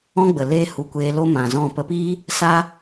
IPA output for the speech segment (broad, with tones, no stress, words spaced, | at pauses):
ɔ̃˦ɡ͡bə˨ leː˦hu˧ kʷeː˧lo˦ mã˨zɔ̃˦˨ pə˧piː˦ | sa˦